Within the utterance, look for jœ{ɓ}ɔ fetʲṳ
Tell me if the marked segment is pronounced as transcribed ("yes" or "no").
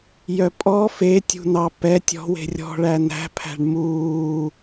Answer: no